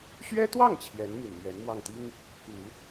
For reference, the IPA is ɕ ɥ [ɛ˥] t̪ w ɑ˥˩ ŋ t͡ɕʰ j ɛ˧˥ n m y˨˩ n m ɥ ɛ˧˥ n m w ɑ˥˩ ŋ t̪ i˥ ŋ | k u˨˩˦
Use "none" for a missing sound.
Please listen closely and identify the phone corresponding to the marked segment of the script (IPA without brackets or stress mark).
ɛ˥